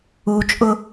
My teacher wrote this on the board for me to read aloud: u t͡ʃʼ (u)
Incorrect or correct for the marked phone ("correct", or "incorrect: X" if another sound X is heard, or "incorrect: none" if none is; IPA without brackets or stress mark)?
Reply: incorrect: ʊ